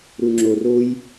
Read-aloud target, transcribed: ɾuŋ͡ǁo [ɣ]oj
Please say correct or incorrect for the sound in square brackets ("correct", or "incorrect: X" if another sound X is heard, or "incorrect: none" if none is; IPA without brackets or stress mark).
incorrect: r